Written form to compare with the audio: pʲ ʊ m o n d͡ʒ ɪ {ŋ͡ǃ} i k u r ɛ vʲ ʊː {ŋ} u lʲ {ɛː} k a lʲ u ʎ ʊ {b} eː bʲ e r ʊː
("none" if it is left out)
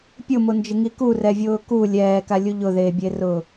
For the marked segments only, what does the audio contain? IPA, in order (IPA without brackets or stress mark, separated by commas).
ŋ, k, ɛː, ð